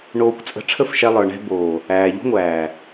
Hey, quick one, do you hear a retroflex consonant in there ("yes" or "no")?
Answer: yes